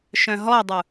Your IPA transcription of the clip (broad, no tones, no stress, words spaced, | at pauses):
ʃœ̃ɦɔdˤu